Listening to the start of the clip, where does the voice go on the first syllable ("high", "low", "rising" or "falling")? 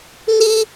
high